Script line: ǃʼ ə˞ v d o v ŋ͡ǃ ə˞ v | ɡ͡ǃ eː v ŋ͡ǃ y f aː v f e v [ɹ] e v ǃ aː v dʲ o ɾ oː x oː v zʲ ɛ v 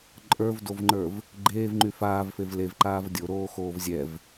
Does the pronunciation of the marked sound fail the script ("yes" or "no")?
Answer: yes